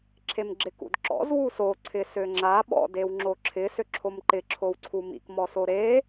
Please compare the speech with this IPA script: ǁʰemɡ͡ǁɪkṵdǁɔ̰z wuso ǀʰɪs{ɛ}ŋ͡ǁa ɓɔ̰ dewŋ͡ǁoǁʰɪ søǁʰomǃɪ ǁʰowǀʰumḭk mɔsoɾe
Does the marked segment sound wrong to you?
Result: yes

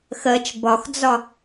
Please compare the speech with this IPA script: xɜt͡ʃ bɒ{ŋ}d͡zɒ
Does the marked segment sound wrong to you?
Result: yes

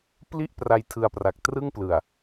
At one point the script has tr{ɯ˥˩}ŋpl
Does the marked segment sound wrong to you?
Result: no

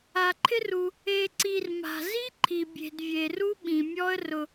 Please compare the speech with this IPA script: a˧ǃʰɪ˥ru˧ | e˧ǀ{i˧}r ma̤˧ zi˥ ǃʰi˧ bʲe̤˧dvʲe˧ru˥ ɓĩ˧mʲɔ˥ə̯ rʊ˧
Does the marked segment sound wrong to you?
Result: no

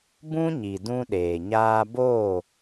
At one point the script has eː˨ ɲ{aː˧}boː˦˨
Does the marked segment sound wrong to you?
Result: no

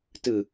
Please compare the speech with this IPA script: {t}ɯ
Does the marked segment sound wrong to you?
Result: no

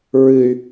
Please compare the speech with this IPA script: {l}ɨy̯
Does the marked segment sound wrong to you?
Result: yes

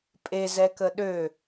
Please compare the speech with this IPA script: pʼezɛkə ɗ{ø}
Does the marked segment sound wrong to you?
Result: no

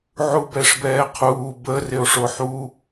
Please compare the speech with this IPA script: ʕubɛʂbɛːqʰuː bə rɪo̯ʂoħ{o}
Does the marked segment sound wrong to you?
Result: yes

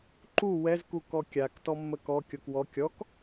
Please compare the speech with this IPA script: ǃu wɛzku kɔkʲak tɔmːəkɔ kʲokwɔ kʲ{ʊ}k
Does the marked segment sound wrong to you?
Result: yes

